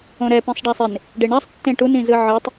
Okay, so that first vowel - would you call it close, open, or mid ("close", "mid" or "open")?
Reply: mid